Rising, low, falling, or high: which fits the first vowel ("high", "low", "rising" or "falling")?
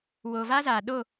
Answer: low